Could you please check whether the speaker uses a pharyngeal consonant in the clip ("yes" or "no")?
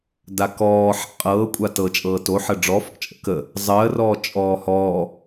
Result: yes